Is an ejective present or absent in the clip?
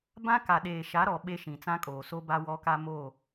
present